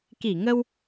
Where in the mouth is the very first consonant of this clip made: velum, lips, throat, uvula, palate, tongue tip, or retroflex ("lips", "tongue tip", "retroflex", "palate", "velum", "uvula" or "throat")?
velum